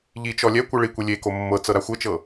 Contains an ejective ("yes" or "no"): no